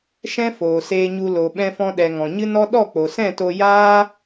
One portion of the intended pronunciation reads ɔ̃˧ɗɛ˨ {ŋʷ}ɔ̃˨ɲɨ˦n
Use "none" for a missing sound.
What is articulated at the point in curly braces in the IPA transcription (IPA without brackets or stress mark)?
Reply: ŋ